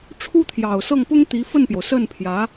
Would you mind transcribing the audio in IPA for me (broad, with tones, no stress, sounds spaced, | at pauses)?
ʈ͡ʂʰ u˥ t̪ʰ j ɑ˨˩ ʊ̯ s ɤ˥˩ ŋ p ʊ˥ ŋ t̪ i˧˥ f ə˥˩ n p j o˩ ʊ̯ s ə˥˩ n pʰ j ä˧˥